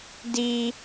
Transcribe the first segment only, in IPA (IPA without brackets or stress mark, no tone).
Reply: d